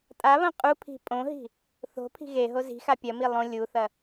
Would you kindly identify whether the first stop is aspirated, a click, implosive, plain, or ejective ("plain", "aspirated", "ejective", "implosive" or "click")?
ejective